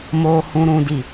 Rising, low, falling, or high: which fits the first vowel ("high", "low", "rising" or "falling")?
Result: low